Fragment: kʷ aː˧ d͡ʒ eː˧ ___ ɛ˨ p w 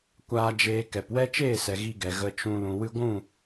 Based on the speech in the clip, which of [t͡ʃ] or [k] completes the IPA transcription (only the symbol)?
k